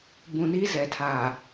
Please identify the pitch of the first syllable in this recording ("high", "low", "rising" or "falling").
low